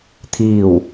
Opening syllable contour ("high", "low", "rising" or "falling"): falling